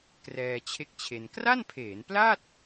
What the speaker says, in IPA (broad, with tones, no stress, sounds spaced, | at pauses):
k r ɛː˧ t͡ɕʰ e˥˩ k̚ t͡ɕʰ e˧ n k r a˥˩ n pʰ eː˩˦ n p l a˥˩ t̚